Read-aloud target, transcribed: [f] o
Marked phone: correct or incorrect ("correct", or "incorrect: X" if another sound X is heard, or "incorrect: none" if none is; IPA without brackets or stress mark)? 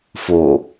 correct